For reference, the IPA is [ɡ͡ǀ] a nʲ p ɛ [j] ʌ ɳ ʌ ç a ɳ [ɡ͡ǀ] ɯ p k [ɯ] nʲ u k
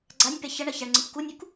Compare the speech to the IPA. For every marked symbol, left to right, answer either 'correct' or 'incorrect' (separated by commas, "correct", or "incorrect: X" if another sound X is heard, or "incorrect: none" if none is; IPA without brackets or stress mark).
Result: correct, incorrect: ç, incorrect: ŋ͡ǀ, incorrect: u